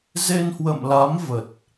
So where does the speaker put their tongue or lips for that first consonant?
tongue tip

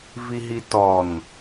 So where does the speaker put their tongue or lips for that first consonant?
lips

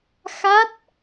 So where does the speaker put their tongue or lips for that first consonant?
velum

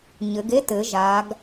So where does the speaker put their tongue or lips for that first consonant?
palate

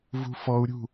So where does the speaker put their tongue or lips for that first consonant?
lips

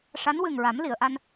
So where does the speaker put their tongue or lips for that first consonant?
retroflex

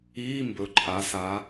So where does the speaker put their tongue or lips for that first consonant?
lips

